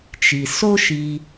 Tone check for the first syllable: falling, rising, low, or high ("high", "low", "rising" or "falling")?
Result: low